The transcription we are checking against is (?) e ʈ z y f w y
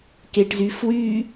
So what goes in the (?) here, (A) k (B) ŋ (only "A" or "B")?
A